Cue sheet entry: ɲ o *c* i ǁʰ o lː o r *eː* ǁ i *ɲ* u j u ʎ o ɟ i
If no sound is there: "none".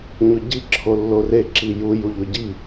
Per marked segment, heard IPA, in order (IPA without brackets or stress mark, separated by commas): ɟ, e, j